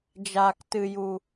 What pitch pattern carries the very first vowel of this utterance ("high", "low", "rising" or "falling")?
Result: low